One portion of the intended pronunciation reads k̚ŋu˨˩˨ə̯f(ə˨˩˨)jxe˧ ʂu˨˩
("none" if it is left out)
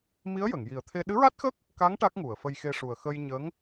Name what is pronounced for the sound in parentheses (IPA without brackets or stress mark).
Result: ə˧